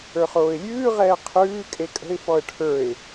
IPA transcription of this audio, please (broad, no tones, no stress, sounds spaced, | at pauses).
ə˞ χ oː ɪ̯ lʲ ʉː ʁ ɛː qʰ ʉː kʼ e kʼ ə̤ ɪ̯ f ɔ ə̯ ʈʰ ə˞ ɪ̯